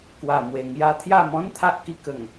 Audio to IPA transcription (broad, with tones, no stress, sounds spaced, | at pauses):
k w a˨˩ m w e˨˩ ŋ j a˧ t̪ʰ j a˥˧ m ɔ̃˦ n t̪ʰ a˦ ʔ k i˧ k ə˨˩ ŋ